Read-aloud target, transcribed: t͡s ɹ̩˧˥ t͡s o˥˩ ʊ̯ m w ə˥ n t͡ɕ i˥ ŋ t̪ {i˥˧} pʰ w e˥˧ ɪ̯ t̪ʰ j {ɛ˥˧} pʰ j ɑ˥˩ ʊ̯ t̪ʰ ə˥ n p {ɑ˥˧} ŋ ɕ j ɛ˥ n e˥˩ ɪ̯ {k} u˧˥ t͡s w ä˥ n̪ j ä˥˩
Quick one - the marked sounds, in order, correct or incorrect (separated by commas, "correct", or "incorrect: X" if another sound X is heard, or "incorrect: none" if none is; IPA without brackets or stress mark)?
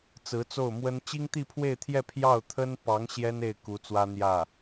correct, correct, incorrect: ɑ˧˥, correct